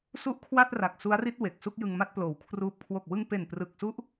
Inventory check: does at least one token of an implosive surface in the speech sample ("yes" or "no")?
no